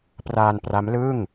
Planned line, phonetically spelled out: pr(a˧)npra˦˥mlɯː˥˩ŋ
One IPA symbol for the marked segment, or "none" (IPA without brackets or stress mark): aː˧